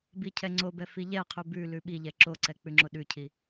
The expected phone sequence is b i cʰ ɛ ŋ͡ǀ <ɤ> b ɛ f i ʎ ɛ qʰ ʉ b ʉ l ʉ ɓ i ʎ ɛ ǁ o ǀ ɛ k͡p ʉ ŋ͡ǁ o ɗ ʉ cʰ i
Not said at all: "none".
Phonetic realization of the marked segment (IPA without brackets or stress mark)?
o